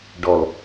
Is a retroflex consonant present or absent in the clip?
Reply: present